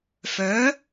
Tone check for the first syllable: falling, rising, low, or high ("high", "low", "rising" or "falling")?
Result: rising